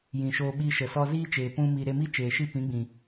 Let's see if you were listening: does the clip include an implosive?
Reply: yes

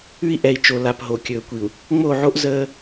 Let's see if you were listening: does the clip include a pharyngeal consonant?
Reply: yes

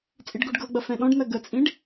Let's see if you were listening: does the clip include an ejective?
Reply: yes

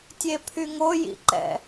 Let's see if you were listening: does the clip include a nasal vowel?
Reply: no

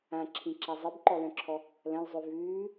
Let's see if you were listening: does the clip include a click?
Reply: yes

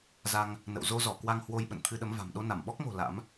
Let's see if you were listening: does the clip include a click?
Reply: no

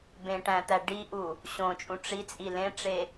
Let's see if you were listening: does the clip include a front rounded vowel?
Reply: no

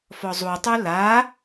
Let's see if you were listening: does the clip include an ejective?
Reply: no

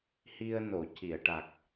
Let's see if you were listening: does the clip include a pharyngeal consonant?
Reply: no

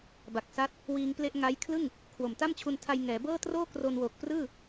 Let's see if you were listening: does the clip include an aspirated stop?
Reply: yes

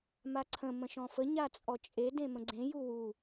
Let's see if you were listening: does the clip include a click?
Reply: yes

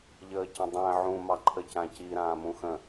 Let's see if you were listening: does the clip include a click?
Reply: yes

